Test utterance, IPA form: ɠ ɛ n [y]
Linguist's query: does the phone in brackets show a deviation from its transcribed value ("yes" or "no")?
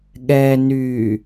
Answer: no